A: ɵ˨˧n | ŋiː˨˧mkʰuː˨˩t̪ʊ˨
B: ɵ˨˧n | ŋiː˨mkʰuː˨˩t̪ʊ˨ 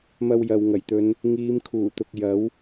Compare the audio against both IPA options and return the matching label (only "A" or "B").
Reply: A